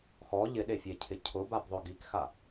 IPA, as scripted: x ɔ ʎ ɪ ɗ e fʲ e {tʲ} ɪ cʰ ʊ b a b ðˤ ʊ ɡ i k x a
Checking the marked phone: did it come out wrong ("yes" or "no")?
yes